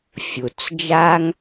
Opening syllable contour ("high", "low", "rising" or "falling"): low